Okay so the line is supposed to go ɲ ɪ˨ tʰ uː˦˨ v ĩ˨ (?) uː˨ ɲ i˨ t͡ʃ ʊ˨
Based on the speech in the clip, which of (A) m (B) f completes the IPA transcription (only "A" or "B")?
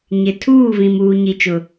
A